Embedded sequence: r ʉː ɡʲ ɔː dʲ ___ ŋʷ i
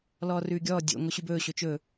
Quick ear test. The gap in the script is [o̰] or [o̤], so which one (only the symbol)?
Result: o̰